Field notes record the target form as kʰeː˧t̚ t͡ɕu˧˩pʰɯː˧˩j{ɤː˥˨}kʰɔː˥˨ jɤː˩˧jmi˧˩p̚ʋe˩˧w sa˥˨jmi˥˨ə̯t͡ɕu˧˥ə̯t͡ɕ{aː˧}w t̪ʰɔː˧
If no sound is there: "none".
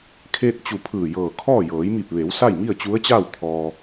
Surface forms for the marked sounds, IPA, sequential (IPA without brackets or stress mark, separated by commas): ɤː˧˩, aː˥˨